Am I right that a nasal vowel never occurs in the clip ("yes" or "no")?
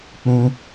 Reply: no